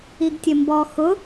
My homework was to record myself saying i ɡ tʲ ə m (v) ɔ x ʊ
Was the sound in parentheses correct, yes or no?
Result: no